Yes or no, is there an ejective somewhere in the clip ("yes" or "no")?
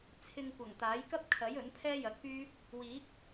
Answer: no